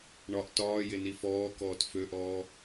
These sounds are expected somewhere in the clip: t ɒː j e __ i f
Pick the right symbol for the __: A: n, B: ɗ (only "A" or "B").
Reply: A